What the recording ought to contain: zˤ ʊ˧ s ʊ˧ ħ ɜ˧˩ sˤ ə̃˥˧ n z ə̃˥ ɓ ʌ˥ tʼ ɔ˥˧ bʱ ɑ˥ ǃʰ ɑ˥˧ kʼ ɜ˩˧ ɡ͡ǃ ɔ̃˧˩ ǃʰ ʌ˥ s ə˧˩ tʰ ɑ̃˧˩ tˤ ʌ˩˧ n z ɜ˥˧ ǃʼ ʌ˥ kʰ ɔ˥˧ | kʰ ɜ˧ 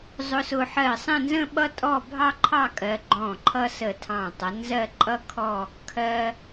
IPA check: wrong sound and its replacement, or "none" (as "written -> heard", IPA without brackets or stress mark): none